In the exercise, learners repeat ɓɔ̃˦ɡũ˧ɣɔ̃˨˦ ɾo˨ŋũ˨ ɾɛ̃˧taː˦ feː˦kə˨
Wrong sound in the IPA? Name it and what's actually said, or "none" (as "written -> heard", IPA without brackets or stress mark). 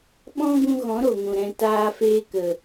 none